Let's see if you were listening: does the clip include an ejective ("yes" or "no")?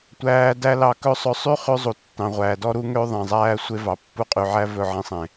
yes